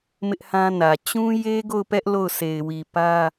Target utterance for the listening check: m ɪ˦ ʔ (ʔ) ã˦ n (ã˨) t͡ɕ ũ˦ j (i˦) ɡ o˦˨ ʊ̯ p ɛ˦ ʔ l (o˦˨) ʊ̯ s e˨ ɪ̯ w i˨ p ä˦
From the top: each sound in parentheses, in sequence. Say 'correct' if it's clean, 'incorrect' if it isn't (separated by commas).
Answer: incorrect, incorrect, incorrect, correct